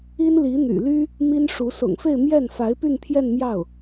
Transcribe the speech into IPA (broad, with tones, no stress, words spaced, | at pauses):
i˥nli˧˥n̪y̰˨˩ ly˥ | mi˥nʂu˧˥ sʊ̰˨˩ŋfe˥˧ɪ̯ mjɛ˥˩nfa˧˥ɪ̯ py˥˧npʰjɛ˥˧nmjɑ˥˩ʊ̯